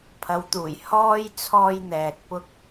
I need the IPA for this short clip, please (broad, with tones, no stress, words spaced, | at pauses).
pʰɐ˨˧wt̪uː˨˩j hɔː˥j t͡sʰɔː˧jn̪ɛː˨t̚ pʊ˥k̚